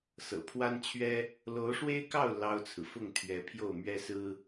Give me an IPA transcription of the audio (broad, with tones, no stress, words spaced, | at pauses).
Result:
sɤ̰˨˩pʰwa˥nt͡ɕʰɥɛ˥ | lo˧˥ʊ̯ʂwe˥ɪ̯kɑ˥˩ʊ̯ lɑ˥ʊ̯t͡sʰɹ̩˨ fʊ˥˩ŋ t̪ʰɥɛ˧˥ pʰjo˥˩ʊ̯mɥɛ˥sɹ̩˥